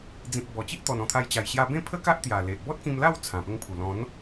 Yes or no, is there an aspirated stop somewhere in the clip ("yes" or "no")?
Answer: yes